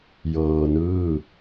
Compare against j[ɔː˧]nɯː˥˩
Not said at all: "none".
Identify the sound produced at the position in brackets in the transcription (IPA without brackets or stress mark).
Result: ɤː˧